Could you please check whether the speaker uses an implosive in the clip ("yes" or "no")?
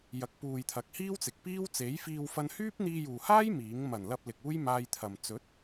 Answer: no